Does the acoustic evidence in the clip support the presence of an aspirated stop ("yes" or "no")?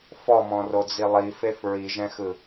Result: no